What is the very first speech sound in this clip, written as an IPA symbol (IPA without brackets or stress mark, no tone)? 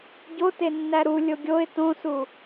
ɟ